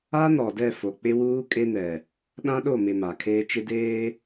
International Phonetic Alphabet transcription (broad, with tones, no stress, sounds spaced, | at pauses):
a˦ n ɔ˨ d ɛ˦˨ f o˨ k͡p ɪ˦ w uː˦ kʼ e˦ n ɛ˨ | ɗ ã˦ ɗ o˦˨ m ɪ˨ m a˨ kʰ eː˦ t͡ʃ ɪ˦ d eː˦